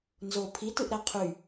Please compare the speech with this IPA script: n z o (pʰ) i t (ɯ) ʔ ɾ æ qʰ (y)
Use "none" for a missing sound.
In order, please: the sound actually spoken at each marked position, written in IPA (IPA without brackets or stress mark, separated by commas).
pʰ, ɯ, y